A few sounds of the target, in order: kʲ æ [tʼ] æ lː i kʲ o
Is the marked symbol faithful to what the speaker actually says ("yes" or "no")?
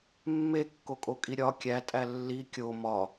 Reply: yes